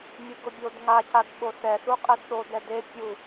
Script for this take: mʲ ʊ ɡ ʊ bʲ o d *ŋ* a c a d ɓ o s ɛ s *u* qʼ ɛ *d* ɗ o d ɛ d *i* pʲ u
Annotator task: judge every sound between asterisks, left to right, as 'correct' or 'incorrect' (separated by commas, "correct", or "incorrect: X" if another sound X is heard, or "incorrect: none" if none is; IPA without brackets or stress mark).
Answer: correct, correct, correct, incorrect: e